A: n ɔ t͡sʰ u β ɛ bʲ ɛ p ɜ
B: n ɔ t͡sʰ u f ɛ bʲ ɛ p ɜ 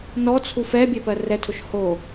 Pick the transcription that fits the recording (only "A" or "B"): B